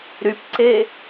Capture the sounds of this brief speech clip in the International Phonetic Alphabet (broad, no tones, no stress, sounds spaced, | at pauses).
ɾ y p ǀ e